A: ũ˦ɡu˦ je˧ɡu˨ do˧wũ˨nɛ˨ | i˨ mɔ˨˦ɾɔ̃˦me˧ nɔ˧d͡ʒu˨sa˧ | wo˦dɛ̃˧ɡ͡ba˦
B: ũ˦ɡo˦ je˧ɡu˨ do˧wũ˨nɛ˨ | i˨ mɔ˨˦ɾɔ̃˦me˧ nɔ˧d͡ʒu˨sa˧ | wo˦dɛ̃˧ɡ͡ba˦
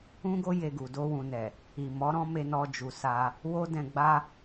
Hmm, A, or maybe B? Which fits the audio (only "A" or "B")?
B